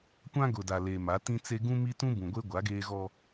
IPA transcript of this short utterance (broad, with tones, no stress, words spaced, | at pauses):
kʷã˦ɡʊ˨da˨ le˨ma˨˦tĩ˦t͡se˦ ɡũ˦mi˦tũ˦bũ˨ ɡʷe˦ɡʷa˨˦ ɡeː˦ɣɔ˦